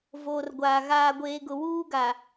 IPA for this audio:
v oː˨ r ɡʷ aː˨ ɣ aː˨ ɡʷ eː˨ ɡ ʊ˨ w uː˦ ɡ a˨

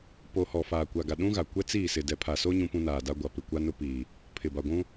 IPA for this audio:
p o˨ h ɔ˨ f aː˨ kʷ a˨ ɡ a˨ ɗ ũ˦ ɣ a˨ kʷ ɛ˦ t͡s iː˦˨ s ɪ˨ d ɛ˨ pʰ a˨ s o˦ ɲ ũ˦ p ũ˦ n aː˨ d a˦ ɡʷ a˨ p ɪ˨ kʷ a˦ n ʊ˦ p iː˨ | pʰ ɪ˨ b a˨ ɡʷ ũ˦

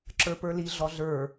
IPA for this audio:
ǁ ə˞ p ə˞ l i ɮ ɔ ɮ ə˞

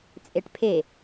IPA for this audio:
t͡sʼ e ʈ pʰ e

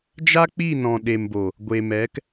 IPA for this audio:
d͡ʒ a˦ k͡p i˦˨ n ɔ̃˨ ɗ e˨ m b o˨ | ɡʷ e˨ m ɛ˨˦ k

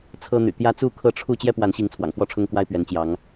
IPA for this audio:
t͡sʰ ɤ˦ n̪ y̰˨˩ t̪ j ä˦ t͡s u˥˨ kʰ ɤ˥˨ ʈ͡ʂʰ u˥˨ t͡ɕ j ɛ˦ p w a˨˦ n ɕ i˨˦ ŋ t͡sʰ w ɑ̰˨˩ ŋ f w ɔ˥˨ ʈ͡ʂʰ ʊ˦ ŋ k w a˦ ɪ̯ p ɥ ɛ˨˦ n t͡ɕ j ɑ˨˦ ŋ

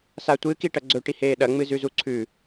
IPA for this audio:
s a tʷ ɨ k i ʈ ɐ ɡ͡ǀ ɵ ʈ i h eː ɗ ɐ ŋ͡m ɨ z ʉ z u ǀʰ ʉ

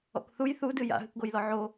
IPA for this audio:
ɔ̰ k θ u j θ u d ɨ j a̰ ɦ ɨ k ɡ o j l ɔ ʕ o

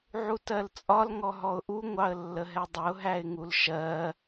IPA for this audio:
ʕ u t ɜ l t͡sʼ ɒ l ŋ ɔ ɦ ɔ ʊ̯ ʔ u ŋʷ ɑ ə̯ lː ə ɦ ɛ dˤ ə ʊ̯ ɦ æ ɪ̯ ŋ u l ʃ ɜ

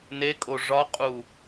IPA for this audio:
n e kʼ o ʐ ɒ qʼ u

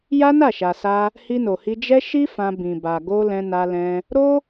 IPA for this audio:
j a˦ n a˦˨ ʃ a˨ s a˧ | h i˧ n o˨ h i˧ d͡ʒ ɛ˦ ʃ i˦ f ã˧ b ĩ˨ b a˨ ɡ o˧ l ɛ̃˧ n a˧ l ɛ̃˧ | ɾ o˦

